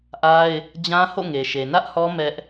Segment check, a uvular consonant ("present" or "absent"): absent